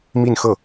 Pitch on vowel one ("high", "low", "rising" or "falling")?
falling